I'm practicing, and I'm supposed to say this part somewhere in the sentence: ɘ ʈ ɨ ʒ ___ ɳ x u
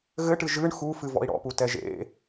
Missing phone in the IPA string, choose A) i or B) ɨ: B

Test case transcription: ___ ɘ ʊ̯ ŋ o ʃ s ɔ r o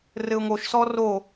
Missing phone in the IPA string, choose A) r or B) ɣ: A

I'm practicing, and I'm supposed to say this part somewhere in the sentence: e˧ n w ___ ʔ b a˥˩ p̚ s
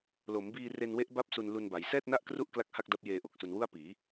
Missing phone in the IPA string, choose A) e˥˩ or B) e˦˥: B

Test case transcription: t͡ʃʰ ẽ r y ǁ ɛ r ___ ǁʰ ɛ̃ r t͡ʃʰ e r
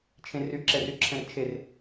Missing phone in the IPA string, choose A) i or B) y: B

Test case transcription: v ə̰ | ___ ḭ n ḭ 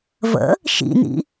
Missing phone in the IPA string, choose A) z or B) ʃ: B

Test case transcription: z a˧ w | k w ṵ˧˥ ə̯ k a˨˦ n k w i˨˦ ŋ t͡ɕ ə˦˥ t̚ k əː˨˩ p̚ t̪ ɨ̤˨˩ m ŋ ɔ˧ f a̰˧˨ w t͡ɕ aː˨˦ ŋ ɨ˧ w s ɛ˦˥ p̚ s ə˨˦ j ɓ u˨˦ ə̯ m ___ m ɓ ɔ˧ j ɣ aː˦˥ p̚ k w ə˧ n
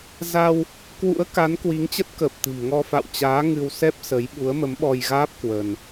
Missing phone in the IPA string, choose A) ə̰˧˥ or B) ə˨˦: B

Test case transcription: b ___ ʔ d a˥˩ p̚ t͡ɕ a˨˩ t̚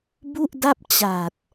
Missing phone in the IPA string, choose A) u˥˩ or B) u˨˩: A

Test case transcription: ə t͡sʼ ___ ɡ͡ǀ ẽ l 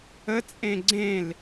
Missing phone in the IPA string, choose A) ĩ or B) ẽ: B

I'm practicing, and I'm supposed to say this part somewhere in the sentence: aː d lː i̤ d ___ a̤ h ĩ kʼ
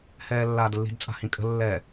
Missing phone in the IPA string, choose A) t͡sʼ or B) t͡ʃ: A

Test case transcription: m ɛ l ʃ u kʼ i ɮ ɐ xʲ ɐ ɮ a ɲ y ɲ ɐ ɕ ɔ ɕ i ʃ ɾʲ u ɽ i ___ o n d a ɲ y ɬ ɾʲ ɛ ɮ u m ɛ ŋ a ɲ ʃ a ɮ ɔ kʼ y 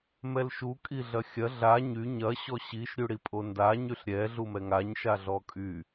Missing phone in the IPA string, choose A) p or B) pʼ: B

